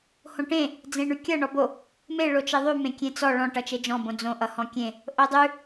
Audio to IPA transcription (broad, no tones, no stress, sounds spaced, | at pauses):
h õ ʈ ẽ | d͡z ẽ ɳ ʉ kʲ ʌ ɳ ɔ b o | m e ɭ o t͡ʃ e ðˤ ʉ m ẽ kʲ ẽ t͡s ɔ ɭ ɔ̃ ʈ ʌ t͡ʃ e d͡ʒ ɔ̃ b õ d͡z õ ʔ ʌ h ɔ̃ kʲ ẽ | ʔ o dˤ ʉ